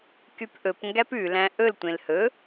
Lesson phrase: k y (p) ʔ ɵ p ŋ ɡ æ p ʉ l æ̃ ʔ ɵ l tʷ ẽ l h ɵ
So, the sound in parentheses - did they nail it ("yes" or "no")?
yes